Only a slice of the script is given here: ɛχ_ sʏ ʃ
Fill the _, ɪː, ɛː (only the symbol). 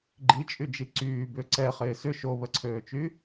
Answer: ɪː